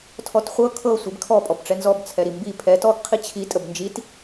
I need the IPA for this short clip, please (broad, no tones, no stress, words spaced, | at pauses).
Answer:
tʰɔtχʷɤ kʰɤ sʷibkʰɔ pʼɔbʈ͡ʂɛnzɔb t͡sʰɛɾimbi pʰɛt ɔɡ qʰit͡ɕʰi tʼəbnd͡ʒit